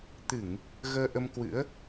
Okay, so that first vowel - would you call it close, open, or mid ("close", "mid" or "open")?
close